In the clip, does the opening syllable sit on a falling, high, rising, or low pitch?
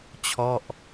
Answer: falling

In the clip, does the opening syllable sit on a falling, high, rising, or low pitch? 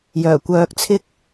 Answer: low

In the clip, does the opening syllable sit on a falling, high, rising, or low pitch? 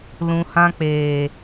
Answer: low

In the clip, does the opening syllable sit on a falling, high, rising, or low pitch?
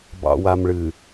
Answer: low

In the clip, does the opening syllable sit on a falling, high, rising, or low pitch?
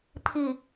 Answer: falling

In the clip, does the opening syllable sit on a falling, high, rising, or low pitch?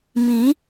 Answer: rising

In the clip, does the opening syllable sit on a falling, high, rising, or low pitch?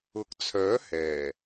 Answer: rising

